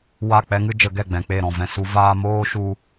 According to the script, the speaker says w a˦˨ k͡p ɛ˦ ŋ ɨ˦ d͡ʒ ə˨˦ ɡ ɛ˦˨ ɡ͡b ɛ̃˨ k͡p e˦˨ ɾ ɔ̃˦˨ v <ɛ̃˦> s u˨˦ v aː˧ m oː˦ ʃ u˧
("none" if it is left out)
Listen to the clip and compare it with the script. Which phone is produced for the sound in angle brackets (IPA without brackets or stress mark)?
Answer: ɛ̃˧